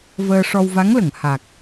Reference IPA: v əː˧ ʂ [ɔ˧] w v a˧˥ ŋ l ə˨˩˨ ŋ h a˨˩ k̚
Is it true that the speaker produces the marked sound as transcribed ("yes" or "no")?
yes